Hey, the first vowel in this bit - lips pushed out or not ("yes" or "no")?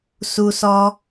yes